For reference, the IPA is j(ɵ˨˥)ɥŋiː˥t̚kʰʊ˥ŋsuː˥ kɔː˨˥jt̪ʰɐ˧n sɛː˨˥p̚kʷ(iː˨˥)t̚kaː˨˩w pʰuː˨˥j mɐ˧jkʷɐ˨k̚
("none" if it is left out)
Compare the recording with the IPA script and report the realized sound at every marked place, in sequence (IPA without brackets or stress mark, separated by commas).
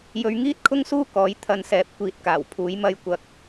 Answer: ɵ˨˧, iː˨˥